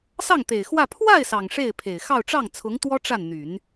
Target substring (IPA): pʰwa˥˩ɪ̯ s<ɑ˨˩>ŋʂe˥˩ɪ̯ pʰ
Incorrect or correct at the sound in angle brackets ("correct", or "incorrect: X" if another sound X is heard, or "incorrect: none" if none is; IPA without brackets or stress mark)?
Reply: correct